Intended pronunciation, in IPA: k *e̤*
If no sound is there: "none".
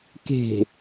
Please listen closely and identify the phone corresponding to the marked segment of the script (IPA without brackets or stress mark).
e̤